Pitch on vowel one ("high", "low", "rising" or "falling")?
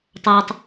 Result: low